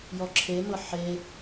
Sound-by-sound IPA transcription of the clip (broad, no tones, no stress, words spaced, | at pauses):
jɔǁʰemɤ ħe